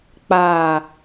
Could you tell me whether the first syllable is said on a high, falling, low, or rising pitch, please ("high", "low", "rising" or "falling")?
low